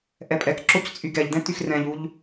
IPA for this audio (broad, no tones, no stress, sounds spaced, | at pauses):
ʔ ɛ pʼ ɛ k ǁ o c t͡sʼ y ɡ ɛ ʎ d ɛ̃ t y x r ɛ̃ ʎ u ʎ